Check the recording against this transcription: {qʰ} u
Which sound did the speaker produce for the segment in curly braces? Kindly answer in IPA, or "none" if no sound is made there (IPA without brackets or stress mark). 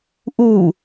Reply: ʔ